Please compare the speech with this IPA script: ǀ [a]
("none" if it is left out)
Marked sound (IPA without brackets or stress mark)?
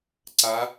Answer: a